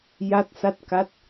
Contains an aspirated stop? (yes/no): no